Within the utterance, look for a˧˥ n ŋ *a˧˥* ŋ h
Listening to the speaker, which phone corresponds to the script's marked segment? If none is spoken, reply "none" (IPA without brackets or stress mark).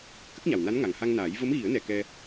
a˨˩